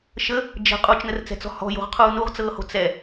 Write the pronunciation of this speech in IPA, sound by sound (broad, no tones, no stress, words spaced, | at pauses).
ʃə | d͡ʒə̤ qʼut͡ʃnərt͡sɛ̤t͡sɔ̤ hɔ̤jo̤ʁqʰuː nuʁt͡sɤːho̤ t͡sɛ